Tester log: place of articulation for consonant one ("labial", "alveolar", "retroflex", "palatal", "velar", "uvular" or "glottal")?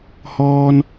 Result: glottal